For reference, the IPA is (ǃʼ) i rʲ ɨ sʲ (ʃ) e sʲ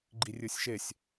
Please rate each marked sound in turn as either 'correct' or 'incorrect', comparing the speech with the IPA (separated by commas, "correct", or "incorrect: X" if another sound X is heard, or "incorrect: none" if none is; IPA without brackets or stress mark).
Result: incorrect: ɡ͡ǃ, correct